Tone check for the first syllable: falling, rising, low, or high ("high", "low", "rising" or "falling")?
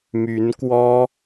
rising